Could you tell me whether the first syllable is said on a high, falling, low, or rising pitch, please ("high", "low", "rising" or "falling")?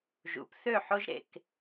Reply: rising